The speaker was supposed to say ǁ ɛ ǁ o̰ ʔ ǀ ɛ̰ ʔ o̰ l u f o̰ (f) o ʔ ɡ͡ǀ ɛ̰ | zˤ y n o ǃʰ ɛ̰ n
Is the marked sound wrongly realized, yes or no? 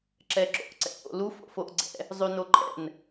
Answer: no